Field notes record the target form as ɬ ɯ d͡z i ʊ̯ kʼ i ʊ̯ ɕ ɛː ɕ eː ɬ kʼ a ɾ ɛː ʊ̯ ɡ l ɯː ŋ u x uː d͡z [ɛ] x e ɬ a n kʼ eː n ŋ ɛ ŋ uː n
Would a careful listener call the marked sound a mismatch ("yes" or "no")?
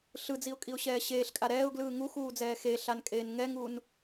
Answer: yes